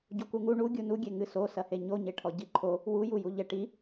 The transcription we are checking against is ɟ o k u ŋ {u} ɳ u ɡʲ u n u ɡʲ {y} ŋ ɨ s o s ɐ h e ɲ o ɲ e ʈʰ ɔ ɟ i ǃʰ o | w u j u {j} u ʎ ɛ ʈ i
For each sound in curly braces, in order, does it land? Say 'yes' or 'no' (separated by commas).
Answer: yes, no, yes